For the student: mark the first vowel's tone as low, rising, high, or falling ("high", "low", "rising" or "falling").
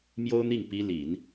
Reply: high